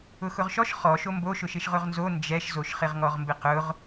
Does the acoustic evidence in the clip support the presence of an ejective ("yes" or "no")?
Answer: no